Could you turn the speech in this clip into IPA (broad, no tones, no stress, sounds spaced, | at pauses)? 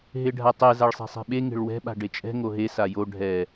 ɦ e ɖʱ a tˤ ɛ z a ɭ sˤ e̤ sˤ e̤ ɓ e ŋ e̤ ɭ w ɛ̤ ɓ a̤ ɖ e t͡ʃʼ ɛ̤ ŋ o ɦ e s a j o ɖʱ ɛ